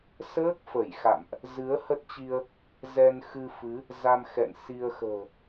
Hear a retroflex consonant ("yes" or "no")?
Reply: no